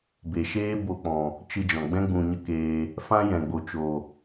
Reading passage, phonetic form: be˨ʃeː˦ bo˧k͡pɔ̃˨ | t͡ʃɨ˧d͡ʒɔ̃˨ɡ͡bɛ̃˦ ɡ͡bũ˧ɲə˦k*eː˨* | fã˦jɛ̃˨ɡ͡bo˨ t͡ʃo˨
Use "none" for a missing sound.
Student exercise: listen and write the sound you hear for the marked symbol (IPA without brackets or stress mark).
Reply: eː˧